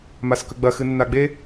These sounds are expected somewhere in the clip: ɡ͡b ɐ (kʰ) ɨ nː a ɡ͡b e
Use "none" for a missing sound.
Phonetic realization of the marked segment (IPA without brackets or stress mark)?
x